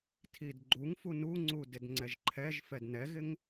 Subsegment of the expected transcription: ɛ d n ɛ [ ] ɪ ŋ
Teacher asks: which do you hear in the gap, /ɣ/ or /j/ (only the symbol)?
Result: ɣ